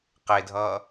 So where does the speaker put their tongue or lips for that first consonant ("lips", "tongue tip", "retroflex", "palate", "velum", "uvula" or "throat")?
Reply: uvula